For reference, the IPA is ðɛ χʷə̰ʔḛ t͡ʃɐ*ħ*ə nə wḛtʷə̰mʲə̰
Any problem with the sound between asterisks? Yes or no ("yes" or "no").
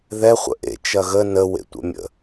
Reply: yes